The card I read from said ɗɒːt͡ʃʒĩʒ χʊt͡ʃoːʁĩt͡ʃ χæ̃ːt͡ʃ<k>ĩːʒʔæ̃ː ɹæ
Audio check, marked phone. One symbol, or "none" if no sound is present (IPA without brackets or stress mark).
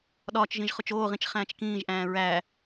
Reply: k